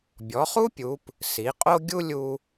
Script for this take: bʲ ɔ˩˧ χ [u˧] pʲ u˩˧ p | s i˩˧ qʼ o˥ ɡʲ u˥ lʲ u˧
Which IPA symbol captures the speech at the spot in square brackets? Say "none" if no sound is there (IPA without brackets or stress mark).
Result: u˥